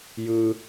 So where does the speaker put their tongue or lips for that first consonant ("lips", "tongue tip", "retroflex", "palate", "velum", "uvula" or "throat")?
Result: palate